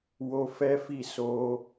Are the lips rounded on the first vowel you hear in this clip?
yes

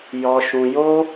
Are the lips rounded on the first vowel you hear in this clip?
yes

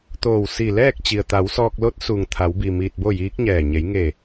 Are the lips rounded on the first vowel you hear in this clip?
yes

